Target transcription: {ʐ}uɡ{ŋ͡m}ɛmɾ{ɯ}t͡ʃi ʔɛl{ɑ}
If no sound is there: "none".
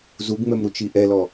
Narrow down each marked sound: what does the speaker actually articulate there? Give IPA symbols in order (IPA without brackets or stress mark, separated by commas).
z, ŋ͡m, u, ɔ